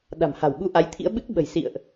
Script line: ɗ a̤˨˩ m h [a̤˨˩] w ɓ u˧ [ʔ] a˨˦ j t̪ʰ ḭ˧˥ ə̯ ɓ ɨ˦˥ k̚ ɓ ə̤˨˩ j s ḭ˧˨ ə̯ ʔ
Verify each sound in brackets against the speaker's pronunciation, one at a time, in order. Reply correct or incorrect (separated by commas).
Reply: correct, correct